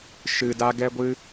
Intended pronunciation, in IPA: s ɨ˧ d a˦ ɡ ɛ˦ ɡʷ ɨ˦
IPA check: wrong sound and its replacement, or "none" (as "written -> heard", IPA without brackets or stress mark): s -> ʃ